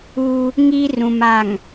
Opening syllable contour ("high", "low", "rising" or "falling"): high